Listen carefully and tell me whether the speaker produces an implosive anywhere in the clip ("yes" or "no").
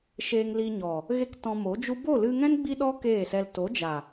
yes